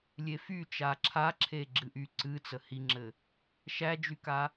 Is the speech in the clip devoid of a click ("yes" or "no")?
no